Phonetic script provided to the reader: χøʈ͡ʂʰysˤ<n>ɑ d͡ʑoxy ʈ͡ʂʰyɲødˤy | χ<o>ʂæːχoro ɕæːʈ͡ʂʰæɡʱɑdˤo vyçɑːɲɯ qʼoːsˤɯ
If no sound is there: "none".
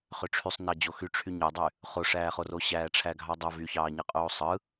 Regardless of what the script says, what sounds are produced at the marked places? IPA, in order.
n, o

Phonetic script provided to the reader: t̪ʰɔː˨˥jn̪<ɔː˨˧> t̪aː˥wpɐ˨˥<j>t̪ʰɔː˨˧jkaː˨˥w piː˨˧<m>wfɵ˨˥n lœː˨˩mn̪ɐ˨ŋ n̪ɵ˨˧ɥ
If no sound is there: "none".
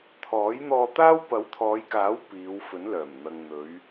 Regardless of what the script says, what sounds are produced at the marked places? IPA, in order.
ɔː˧, w, none

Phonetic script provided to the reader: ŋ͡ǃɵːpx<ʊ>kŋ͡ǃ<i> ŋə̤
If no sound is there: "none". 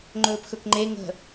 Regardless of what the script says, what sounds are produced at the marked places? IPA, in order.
ɵ, e

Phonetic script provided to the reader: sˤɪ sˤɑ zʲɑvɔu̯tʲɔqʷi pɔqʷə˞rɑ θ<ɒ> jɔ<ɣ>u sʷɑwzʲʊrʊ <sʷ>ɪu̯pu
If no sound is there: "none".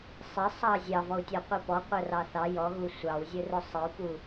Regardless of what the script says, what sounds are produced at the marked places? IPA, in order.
ɑ, ɣ, sˤ

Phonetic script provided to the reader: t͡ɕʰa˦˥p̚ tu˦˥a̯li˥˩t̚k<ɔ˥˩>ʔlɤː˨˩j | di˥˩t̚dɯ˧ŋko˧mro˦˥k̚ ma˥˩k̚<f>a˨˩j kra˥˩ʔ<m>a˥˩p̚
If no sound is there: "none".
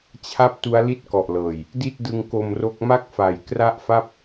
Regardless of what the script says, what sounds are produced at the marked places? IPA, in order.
ɔ˨˩, f, f

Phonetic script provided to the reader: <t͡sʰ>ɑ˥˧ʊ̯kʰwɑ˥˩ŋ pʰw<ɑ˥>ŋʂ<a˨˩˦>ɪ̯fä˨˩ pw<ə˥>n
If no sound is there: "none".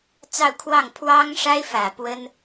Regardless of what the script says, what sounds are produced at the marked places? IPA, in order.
t͡s, ɑ˥, a˥, ə˥

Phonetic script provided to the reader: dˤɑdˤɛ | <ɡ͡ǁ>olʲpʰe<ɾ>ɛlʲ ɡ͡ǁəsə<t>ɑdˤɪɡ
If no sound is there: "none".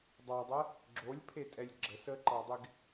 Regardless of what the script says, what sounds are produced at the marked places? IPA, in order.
ɡ͡ǁ, tʼ, ǃ

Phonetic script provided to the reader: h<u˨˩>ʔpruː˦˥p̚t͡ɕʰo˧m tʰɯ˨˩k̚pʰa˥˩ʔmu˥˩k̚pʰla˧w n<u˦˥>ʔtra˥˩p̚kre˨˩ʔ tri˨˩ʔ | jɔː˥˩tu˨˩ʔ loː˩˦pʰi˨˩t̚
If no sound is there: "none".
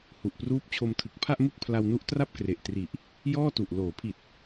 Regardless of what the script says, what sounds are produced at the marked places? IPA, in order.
u˨˩, u˦˥

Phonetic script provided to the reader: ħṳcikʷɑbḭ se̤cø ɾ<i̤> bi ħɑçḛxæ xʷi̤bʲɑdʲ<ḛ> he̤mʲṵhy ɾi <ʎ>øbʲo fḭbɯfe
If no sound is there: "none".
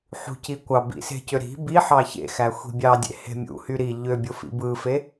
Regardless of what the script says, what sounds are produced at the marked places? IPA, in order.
i̤, ḛ, ʎ

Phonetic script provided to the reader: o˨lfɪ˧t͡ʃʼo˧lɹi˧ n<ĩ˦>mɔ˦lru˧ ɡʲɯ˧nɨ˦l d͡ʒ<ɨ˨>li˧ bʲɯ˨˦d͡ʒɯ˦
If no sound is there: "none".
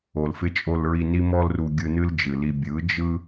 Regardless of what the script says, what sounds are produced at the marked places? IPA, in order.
i˦, ɨ˨

